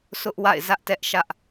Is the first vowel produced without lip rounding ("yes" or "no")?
no